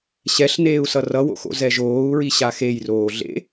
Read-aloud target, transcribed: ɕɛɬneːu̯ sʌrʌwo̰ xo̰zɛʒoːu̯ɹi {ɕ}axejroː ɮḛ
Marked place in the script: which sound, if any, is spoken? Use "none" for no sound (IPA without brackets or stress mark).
ɕ